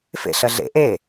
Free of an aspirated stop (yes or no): yes